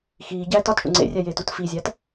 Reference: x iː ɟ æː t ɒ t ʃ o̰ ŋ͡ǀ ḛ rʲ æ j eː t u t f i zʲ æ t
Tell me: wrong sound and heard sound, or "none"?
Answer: none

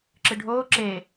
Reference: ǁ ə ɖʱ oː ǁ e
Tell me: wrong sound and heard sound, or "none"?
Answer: ə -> ɨ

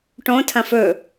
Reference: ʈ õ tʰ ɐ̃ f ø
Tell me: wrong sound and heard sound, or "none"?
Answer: ø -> ɵ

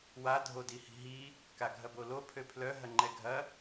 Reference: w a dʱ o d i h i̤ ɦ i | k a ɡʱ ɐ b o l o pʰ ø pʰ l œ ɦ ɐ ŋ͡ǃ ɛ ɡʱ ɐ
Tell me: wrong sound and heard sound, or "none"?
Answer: none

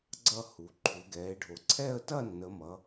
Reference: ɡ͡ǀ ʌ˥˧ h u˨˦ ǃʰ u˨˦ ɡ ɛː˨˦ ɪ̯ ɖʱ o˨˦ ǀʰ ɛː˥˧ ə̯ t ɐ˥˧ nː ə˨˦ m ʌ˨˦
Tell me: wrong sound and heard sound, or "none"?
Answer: none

